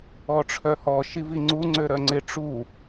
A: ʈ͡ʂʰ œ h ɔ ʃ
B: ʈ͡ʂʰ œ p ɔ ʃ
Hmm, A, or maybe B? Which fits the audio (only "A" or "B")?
A